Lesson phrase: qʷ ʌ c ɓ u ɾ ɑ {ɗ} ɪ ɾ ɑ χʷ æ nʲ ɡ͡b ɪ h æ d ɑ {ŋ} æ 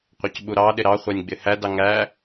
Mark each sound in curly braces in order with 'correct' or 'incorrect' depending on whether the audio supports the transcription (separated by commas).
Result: correct, correct